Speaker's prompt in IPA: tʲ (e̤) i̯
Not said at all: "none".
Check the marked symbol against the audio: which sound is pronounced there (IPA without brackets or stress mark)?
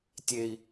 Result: e